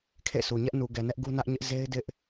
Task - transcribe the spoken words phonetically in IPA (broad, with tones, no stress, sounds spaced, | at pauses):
kʰ ḛ˦˨ s u˨ ɲ ɛ˦ ʔ n u˨ ɡ ɛ˨ n ɛ˦ ʔ ɡ u˦ n ä˦ ʔ ɲ ɪ˦ ʔ z e˦ ɪ̯ d ɪ˦ ʔ